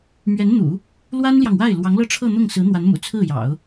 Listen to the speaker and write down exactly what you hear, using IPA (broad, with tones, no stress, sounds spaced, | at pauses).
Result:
m ɥ ɛ˧˥ n n̪ ṵ˨˩˦ | l w a˥ n l j ɑ˨ ŋ w a˥˩ ɪ̯ l w ɑ˧˥ ŋ l ɤ˥˧ ʈ͡ʂʰ ɤ˥˧ n̪ ʊ˥˩ ŋ s ɹ̩˧˥ n̪ w a˧˥ n m ṵ˨˩ t͡sʰ ɹ̩˥˩ j ɑ̰˨˩˦ ʊ̯